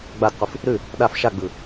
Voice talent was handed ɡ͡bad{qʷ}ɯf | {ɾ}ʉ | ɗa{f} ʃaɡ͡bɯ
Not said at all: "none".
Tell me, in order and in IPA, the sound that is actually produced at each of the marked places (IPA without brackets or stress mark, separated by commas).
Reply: qʷ, ɾ, f